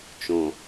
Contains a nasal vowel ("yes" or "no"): yes